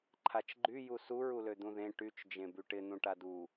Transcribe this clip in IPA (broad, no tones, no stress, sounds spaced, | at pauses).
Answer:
ǃʰ a t͡ʃ ɡ͡ǃ y j u s u ɹ u l ø d̪ ũ ð ẽ ʈ y t͡ʃ d͡ʒ ẽ b y ʈ ɪ n̪ ũ ʈ a d u